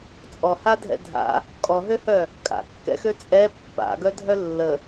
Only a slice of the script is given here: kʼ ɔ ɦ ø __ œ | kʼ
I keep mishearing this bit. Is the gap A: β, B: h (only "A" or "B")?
B